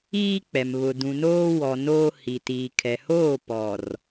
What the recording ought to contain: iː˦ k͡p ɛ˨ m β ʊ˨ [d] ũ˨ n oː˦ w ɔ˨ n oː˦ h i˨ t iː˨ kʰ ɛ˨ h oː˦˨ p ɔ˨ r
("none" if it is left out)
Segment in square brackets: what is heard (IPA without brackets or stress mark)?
d